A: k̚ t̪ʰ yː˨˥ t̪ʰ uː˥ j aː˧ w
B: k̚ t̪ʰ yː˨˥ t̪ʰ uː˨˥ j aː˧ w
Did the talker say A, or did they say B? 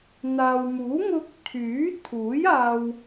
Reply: B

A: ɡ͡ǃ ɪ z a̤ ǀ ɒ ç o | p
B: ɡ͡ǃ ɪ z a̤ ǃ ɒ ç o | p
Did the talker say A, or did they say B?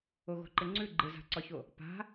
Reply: A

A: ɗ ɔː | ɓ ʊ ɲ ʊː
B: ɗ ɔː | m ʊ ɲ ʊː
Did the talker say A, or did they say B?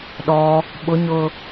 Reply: A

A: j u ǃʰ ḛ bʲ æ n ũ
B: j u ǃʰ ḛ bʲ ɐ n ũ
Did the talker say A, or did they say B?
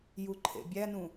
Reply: A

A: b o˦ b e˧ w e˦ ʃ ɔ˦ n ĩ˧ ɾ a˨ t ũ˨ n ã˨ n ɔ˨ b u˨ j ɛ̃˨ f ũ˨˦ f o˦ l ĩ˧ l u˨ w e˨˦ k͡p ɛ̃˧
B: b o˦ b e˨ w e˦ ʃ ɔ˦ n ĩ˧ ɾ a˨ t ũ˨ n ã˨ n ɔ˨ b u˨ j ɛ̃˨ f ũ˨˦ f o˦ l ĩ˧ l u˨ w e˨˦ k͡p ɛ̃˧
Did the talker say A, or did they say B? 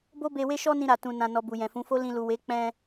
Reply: A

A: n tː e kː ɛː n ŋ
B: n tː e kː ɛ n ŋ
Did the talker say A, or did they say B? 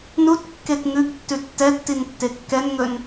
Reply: B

